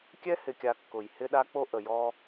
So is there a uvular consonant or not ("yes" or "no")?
no